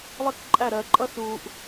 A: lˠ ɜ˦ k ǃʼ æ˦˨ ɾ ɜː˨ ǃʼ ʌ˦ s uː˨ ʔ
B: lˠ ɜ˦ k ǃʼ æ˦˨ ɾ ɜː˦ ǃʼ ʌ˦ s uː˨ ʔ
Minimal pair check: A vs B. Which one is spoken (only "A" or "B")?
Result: A